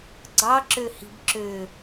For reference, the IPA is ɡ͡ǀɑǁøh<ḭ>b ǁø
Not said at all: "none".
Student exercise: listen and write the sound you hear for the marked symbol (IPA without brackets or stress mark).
i̤